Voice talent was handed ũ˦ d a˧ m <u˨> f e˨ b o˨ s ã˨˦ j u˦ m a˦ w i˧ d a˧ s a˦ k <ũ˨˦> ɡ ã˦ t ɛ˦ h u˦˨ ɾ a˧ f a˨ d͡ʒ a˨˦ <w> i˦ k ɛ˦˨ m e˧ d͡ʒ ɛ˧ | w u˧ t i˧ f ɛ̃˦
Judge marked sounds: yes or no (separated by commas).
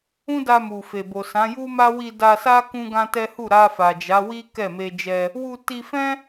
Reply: yes, no, yes